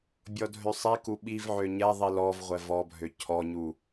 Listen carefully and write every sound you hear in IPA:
bʲ ɔ dʱ ø sˤ i k u ɓ i v ʕ ø ɲ ɛ ðˤ i l ɔ v ʁʷ ɛ v ɔ bʱ ø cʰ ɔ ɲ u

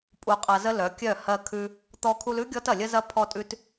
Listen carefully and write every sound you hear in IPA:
pʼ u˧ qʼ ɐ˧ z ə˦ l œ˨˦ kʲ œ˦˨ h ɜ˧ kʰ ʉ˦ | t̪ ɔ˧ kʰ u˧ l ʉ˦ ɡʲ ɔ˦ t ɐ˨ lʲ ə˦ z ɐ˦ pʰ ɔ˦ tʼ ʉ˦ t

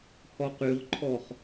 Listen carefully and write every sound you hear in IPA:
h ɔ q y ʁ ǃʰ ɔ χ

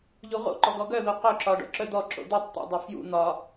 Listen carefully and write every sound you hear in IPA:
ʎ u ʁ o̰ ǃ ɔ ɡ ɔ ɡ œ ð o q œ ǁ ɒ ɖ ɔ̰ ǁ œ d̪ ɔ ǁ o̰ d̪ u tˤ t̪ ṵ dˤ œ f j ṵ n̪ ɒ

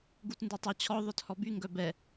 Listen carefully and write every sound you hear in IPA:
ɡ u t n d u tˤ œ t͡ɕʰ ɔ ðˤ œ t h ɔ b y ŋ ɡ œ b ɛ

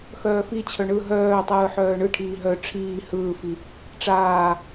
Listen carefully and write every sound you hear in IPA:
x œː f i t͡ɕʰ œ ɳ ɯ ɦ œː tˤ ɯː ħ œː ɳ ɯ ʈʰ iː ɦ œ ʈ͡ʂʰ iː h ɯː f i | ʈ͡ʂ aː

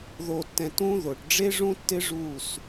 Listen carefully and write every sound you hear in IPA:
ð o˨ tː ɛ̃˨ t ũ˦ ð o˨ ʈ ɖ͡ʐ e˦ ʐ ũ˦ tː ɪ˦ ʐ u˦˨ s

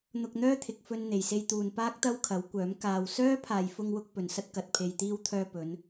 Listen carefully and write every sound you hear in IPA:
n̪ ʊ˧ k̚ n̪ œː˥ t̪ʰ ɪ˨ k̚ f ɵ˧ n n̪ e˨˩ j s e˧ j t̪ uː˨ n p aː˥ k̚ t̪ ɐ˥ w kʰ ɐ˨˥ w kʷ œː˨˥ m k aː˨ w s œː˥ pʰ aː˨ j f ʊ˧ ŋ w ʊ˧ k̚ p ɵ˨ n s ɐ˥ t̚ k ɐ˨ t̚ pʰ e˧ j t̪ iː˧ w t̪ʰ œː˧ p ɵ˨˧ n

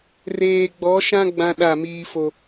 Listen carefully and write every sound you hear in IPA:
r eː˨ ɡ͡b ɔ˨˦ ʃ ã˦ ɡ͡b ã˦ ɗ a˦˨ m iː˦ f o˦

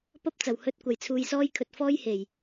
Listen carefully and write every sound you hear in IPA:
p ɐ˥ p̚ t͡s ɐ˨˩ w h ɵ˧ t̚ kʷ ɐ˨˩ j t͡sʰ uː˨ j s ɔː˧ j kʰ ɵ˨ t̚ f ɔː˥ j h e˨˩ j

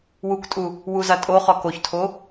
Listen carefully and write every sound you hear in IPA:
w u k tʼ u | w u z a tʼ o χ ɒ k o ç tʰ o

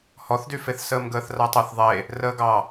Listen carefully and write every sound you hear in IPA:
h ɔ θ d y f e θ s əː m ɡ əː θ r a tˤ ɤ θ ðˤ e | r əː ɡ ɑ

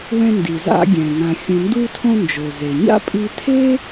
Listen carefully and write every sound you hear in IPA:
w ɛ̃˧ n d i˩ z a̰˧ ɡʲ ɛ̃˩ ŋ ã˩ xʲ ũ˩ n d u˧ tʰ õ˧ n d͡ʒ o˩ z e˩ ɲ a̰˥ pʼ i˧ tʰ e˥

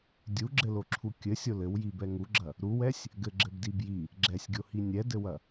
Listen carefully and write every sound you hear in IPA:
dʲ u ɡ͡ǁ ɘ l o ǁʰ u kʲ ɘ sʲ o l ɘ w j i b ɛ ŋ u ɡ͡ǁ ɐ | ɾ u w ɛ sʲ | ɡ ɘ ɡ͡ǁ ɘ b d i b j i | ɡ͡ǁ ɛ sʲ ɡʲ o h i nʲ ɛ d ɘ w ɐ

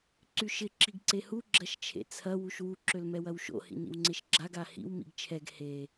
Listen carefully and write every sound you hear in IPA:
ǀ y ʃ ɪ ǁ i ɡ ǀ e h u ɡ͡ǁ ɐ ʃ t͡ʃʰ ḛ t͡sʰ ɐ w u ʃ w u ǁ ø l m ɛ w ɐ w ʃ o̰ h ḭ n ḭ w ŋ͡ǀ e ʃ ɡ͡ǁ a ɡ a h ḭ w m ḭ ɡ t͡ʃʰ ɛ ɡ h e

